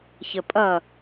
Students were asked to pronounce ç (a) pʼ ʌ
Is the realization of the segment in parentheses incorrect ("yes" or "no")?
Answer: yes